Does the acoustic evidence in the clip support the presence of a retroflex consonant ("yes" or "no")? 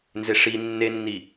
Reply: yes